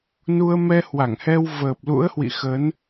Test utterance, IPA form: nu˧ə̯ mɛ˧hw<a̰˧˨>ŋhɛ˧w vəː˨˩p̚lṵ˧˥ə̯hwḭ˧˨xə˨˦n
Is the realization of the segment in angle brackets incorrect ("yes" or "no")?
yes